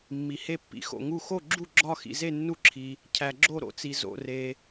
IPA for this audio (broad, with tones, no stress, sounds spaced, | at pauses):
mː i˩ h e˧˩ pː ḭ˩ x o̰˩ ŋ u˧˩ x o˧˩ ɡ͡ǁ u˧˩ ɡ͡ǁ ɒ˧˩ x ḭ˩ z e˧˩ nː u˧˩ ǁʰ i˩ | cʰ æ˩ ɡ͡ǁ o˧˩ ɾ o̰˩ t͡s i˩ z o̰˩ r e˩